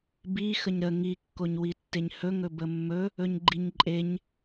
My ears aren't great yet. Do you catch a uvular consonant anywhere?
no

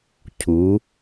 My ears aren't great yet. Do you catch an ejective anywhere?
no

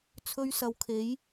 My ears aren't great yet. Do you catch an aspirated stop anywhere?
yes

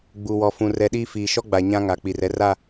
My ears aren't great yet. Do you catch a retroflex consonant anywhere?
no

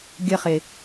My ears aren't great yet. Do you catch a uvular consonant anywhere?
yes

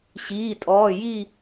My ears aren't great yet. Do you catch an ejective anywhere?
yes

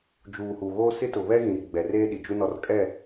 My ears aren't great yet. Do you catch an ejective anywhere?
yes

